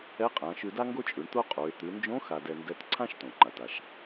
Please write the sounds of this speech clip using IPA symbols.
ɛ˧˥ qʼ ã˩˧ ʃ ʉ˧ d a˥ ŋ ɡ o˥ t͡ʃʼ ʉ˩˧ ɳ t̪ o˥ qʼ o˩˧ ɪ̯ t̪ ʉ˩˧ n d͡ʒ õ˧˥ x a˧ d ɛ˧ n d ɛ˧˥ t ǀʰ ã˥ ʃ t õ˩ ŋ͡ǃ a˩ t a˩ ʃ

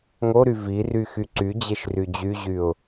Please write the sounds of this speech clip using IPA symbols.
ŋ o ɾ y v i r y x y ǀ y d͡ʑ e ʃ r y d͡ʑ y ʑ y ʊ̯

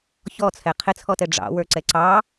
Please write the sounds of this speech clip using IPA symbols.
ç ɔ t͡sʰ ɛ qʰ ɪ t͡sʰ ɔ t ɛ ɖ͡ʐ ɑ̰ w ə˞ ǀ ɛ ǀ ɑ

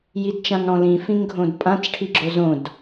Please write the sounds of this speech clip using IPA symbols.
j i d t͡ʃ ã ŋ ɽ ɔ̃ l ĩ f ĩ ŋ ɡʱ õ d pʼ ã t͡s ʈʰ i ɡ͡ǁ o z õ d

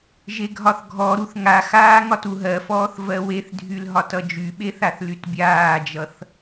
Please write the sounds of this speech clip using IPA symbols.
ʒ e ɡʱ ɒ θ ɡʱ ɔ ɾ u θ ŋ a x aː ŋ ɒ t u ɦ ɜ f ɔː θ v ɜ w e θ dʱ y l ɦ ɒ t ʌ d͡ʒ y ɓ e θ a θ l y t bʲ aː d͡ʒ ʌ θ

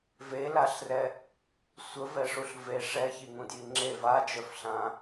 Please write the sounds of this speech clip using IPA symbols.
v e l a ɬ r ɛ | sʷ ə v ɛ ʂ u ɬ v e ʂ ɛ ç i ŋ ũ d j i ŋ͡ǁ e v a d͡ʒ œ f ɬ ã

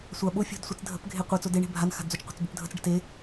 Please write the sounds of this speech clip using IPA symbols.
sʷ a ɓ o fʲ o̤ d sʷ ə t͡s dʱ ə̤ p ɡʱ e qʷ e t͡s o d e ɳ e̤ bʱ a n x a̤ d d͡z o t͡ʃ qʷ e̤ t͡s b o p dʱ ə t͡s ɖ ə̤ t e

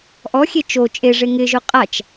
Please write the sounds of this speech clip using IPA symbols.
ʔ ɔ xʲ e t͡ʃ o t͡ʃʼ e ʐ e ŋ ɪ ʒ ʊ qʼ a t͡ʃ

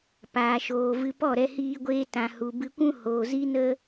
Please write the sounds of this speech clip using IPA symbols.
p aː˨ ʃ oː˨ v ɨ˧ p ɔ˦˨ ɾ ɛ˧ h iː˧ ɡʷ eː˧ t ã˨ h u˨ b ɨ˧ kʷ ũ˦ h oː˨ z i˦ n ə˦

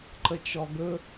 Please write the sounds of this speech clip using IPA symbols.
ǃ ə t͡ʃ ɔ ɡ ɵ

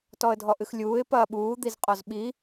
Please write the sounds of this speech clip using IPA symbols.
t ɔ ə̯ dʱ ɔ ʔ ɨ x lʲ uː ɪ̯ p ɐː ɓ uː d̪ i z qʼ ɔ z ɓ i

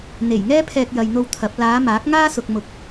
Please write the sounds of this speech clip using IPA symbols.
n̪ e˨˩ j ŋ ɛː˥ pʰ ɛː˧ k̚ j ɐ˨ j n̪ o˧ w t̪ʰ ɐ˨˥ p̚ l aː˨˧ m aː˨˥ k̚ ŋ aː˥ s ʊ˨ k̚ m ʊ˨ k̚

